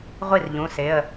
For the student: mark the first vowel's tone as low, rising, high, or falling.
falling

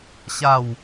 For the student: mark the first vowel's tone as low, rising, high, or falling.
falling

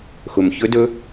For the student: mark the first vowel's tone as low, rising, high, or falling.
low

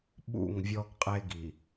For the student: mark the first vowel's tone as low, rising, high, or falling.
falling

